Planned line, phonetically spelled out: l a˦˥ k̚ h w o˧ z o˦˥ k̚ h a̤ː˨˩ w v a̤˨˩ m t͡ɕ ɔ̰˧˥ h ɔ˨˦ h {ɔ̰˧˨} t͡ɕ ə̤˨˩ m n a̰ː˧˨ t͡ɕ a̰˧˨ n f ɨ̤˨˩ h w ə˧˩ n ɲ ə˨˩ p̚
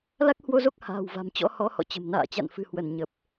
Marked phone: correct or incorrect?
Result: correct